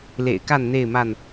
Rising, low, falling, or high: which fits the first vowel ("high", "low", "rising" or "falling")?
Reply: low